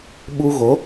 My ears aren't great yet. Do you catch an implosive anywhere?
yes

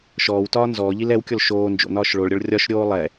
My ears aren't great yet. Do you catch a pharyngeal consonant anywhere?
no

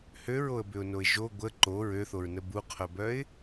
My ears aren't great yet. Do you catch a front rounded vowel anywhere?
yes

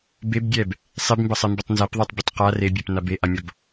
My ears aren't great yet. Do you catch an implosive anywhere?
no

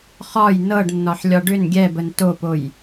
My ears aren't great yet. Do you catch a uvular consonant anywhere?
yes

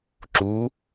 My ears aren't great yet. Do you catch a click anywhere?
yes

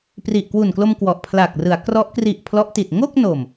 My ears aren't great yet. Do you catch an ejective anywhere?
no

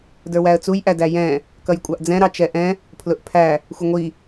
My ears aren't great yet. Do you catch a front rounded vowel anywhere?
no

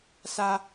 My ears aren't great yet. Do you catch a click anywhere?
no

